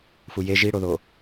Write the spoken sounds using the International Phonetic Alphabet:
f u j e ʒ i ɽ o ð o

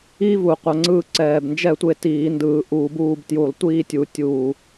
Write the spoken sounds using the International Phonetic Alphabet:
i˦˥ v u˨˩ qʷ a˧ ŋ͡ǀ ɯː˥˧ ǀ ɛː˨˩ b n d͡ʒ ɛ˥˧ tʷ e˧ t iː˧˩˧ n d ɯː˧˩˧ ʔ uː˧ b uː˥˧ b t j u˧˩˧ lˠ tʷ iː˥˧ tʲ u˨˩ tʲ uː˨˩

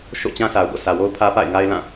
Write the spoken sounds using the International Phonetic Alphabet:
ʃ o̰˦˨ t͡ɕ ã˦ s a˨ ʊ̯ ɡ o̰˦˨ sʰ ä˨ w o˦ ʊ̯ pʰ ä˦ p a̰˦˨ ɪ̯ ŋ a˦ ɪ̯ l ã˦˨

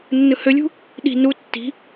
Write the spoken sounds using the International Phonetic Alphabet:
nː ɯ h ø lʲ ṳ | ɗ i̤ n u tː i̤

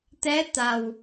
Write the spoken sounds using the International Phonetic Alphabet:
t̪ ɛ˧˥ t̪ a˨˩ w

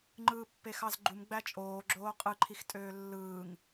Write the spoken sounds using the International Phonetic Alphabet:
ŋ͡ǃ ɯː pː e x ɑ z ɡ͡ǃ u m ɡ͡b æ t͡ʃʼ oː ɡ͡ǁ oː qʼ ɯ ǃʰ i x tʼ øː lː ɯː ŋ

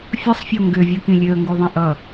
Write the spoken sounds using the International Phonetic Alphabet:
fʲ ɯ sˤ fʲ o ŋ ɡ ʏ vʲ ɯ k ĩ lʲ ø ə̯ ŋ ɡ u ðˤ ĩ ʔ ʌ

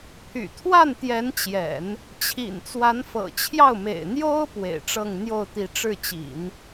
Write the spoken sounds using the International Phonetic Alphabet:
pʰ y̰˨˩ t̪ʰ w a˥˩ n t̪ j ɛ˧˥ n t͡ɕ j ɛ̰˨˩˦ n | t͡ɕʰ ḭ˨˩ n t͡s w a˧˥ n f ɤ̰˨˩ t͡ɕʰ j ɑ˥˩ ʊ̯ m ḛ˨˩ ɪ̯ n̪ j o˥ ʊ̯ p w ḛ˨˩ ɪ̯ ʈ͡ʂ ɤ˥˧ ŋ n̪ j o˥˩ ʊ̯ t̪ i˧˥ ʈ͡ʂ ɻ̩˥˩ t͡ɕ ḭ˨˩˦ n

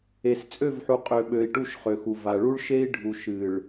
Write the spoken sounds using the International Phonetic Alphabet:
e˨ s t͡sʼ ø˦˨ v ħ u˨ qʼ ø˨ ɓ ø˨ i̯ ʈ u˦˨ ʃ χ ø˨ x u˨ v a˨ ɭ u˦ ɭ ʃ e˦ i̯ ɖʱ u˨ ʃ ɨ˨ ɭ

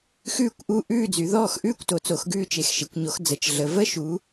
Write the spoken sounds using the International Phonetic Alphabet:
x ʉː˥˨ kʷ ʔ u˥˨ ʔ ʉː˥˨ d͡z y˨˦ ð ɔː˥˨ x ʔ ʉː˥˨ kʷ t o˨˦ t͡s o˨˦ x ɡ ʉː˥˨ t͡ʃ e˨˦ x ʃ e˨˦ kʷ ɲ o˨˦ x d͡z ə˨˦ t͡ʃ ɮ ə˨˦ v ə˥˨ ʃ u˨˦

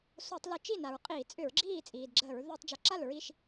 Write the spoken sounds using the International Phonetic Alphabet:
s o˧˩˧ tˤ l ʊ˧˩˧ t͡ʃ i˥˩ n a˩ ɹ qʼ iː˧˩˧ t͡sʼ ʏ˧˩˧ ɹ ɡ͡ǁ iː˥˩ t͡sʼ iː˩ d ɡ͡ǁ əː˧˩˧ ɹ ð əː˧˩˧ tˤ d͡ʒ o˩ ǁ a˥˩ l ɹ i˥˩ ʃ

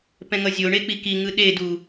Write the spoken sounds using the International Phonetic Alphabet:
p ɛ̃ ŋ ʌ zʲ o ɳ e k͡p i k i ŋ ɯ ɗ e d u

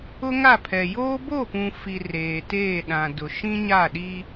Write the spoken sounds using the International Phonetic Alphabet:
ʊ˦ ŋ a˦˨ pʰ ɛ˨ j oː˦ b o˦˨ p ũ˨ f i˨ r eː˨ t eː˦˨ ɗ ã˨ d ʊ˨ ʃ ĩ˦ ɲ a˦˨ ɗ i˦

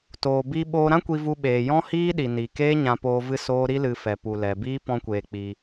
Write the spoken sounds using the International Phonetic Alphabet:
t oː˨ b i˧ ɓ oː˧ ɾ ã˦ kʷ i˧ v u˧ ɓ eː˨ j ɔ̃˦ h iː˦ ɗ i˨ n i˨ k eː˦ ɲ ã˧ p oː˧ v ɨ˦ s oː˦ ɾ i˦ l ɨ˧ f ɛ˨ p u˨ l ɛ˨ b iː˦ p ɔ̃˧ kʷ eː˨ k͡p i˧

